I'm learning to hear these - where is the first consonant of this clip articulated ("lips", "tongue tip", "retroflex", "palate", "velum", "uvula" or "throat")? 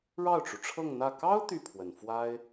retroflex